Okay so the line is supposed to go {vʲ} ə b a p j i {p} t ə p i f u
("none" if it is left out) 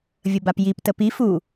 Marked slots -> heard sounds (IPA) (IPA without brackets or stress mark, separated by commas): vʲ, p